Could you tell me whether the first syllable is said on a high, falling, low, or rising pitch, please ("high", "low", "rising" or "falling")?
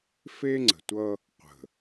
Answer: high